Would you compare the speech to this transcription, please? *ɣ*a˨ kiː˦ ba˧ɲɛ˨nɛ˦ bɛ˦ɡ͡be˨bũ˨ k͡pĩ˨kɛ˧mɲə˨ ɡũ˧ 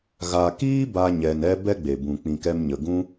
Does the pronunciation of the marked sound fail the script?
no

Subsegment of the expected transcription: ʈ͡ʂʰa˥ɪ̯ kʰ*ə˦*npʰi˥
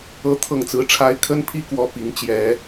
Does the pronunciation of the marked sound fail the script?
yes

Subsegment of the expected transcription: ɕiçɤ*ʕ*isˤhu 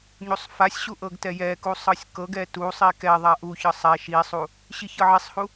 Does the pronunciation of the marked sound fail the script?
no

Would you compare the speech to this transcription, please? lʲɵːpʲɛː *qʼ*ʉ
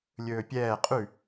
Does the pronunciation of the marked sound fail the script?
no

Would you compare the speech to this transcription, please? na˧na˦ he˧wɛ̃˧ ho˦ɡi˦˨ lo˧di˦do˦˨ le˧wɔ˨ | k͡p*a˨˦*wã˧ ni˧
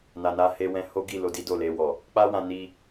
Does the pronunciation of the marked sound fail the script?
yes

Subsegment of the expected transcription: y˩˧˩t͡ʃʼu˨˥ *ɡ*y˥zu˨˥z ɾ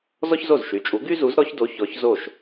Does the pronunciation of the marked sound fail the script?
no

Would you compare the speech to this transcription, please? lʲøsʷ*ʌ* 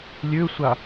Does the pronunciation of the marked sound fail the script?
yes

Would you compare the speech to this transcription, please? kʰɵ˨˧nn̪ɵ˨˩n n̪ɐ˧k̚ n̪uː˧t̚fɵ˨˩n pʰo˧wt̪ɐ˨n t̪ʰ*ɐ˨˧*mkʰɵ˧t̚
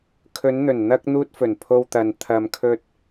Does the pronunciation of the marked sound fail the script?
yes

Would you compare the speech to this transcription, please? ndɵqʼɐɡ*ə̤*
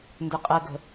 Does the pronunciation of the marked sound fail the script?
no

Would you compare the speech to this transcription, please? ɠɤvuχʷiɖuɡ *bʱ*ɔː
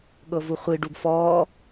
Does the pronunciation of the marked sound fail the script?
yes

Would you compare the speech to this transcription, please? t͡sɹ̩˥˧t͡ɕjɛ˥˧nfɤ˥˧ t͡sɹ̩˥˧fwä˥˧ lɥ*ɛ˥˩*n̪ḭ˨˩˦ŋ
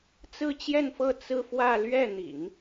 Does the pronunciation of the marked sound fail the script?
no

